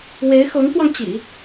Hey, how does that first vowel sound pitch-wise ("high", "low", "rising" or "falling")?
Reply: rising